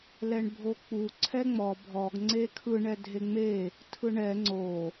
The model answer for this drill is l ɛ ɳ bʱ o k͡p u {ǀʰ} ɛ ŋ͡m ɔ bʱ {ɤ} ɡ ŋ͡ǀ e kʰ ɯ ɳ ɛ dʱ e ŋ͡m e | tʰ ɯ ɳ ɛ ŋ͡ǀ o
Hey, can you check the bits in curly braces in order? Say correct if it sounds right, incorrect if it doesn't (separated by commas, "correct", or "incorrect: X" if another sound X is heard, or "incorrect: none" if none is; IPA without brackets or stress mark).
correct, incorrect: ɔ